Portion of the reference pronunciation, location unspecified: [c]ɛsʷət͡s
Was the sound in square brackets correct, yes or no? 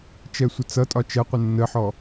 no